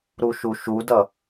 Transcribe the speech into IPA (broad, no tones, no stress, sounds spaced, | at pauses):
ɾ u ʃ u ʃ u d ʌ